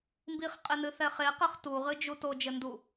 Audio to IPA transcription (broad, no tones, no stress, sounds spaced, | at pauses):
m b i χ qʼ e n ɨ θ ɛ χ e q ɛ χ t u ʁ ɨ d͡ʒ u t o d͡ʒ ɘ n d u